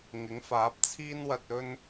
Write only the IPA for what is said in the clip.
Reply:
ŋ ɪ˨˥ ŋ f aː˨˥ p̚ t͡sʰ iː˥ n w ɐ˧ t̚ ɵ˥ n

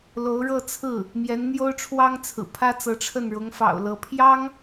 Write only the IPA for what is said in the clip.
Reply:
l o˧˥ ʊ̯ ɻ ɤ˥˧ t͡sʰ ɹ̩˥˩ | m j ɛ˧˥ n n̪ j o˥ ʊ̯ ʈ͡ʂʰ w ɑ˥ ŋ t͡sʰ ɹ̩˨˩ pʰ ä˥ t͡s ɤ˧˥ ʈ͡ʂʰ ə˥˩ n ɻ ʊ˧˥ ŋ f ɑ̰˨˩ ʊ̯ l ɤ˧˥ pʰ j ɑ˥ ŋ

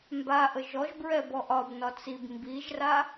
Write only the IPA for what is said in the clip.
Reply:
m b a ʔ ə ʒ ɔ ʒ b ɹ ɛ b ɔ ʔ ɒ b n ɒ t͡s i b m b i ʒ r a

